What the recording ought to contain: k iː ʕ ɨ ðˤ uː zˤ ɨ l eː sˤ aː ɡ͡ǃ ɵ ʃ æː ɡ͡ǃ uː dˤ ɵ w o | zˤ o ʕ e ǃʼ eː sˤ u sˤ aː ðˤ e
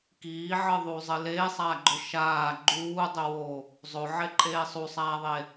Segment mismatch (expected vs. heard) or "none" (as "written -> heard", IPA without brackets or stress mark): æː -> aː